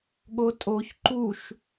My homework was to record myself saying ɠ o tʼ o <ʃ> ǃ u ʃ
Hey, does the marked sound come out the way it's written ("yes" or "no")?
no